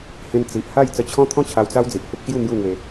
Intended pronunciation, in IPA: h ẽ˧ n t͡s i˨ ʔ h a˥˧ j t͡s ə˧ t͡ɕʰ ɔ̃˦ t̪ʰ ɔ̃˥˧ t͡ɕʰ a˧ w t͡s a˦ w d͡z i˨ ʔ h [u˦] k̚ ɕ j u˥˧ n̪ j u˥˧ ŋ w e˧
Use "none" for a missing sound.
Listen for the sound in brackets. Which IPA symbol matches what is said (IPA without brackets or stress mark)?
u˦